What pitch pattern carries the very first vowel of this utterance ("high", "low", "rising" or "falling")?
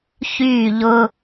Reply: falling